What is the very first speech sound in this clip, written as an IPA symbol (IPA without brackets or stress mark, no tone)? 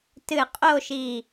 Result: t